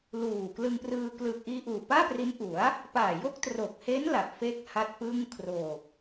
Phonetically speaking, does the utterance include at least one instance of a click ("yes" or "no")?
no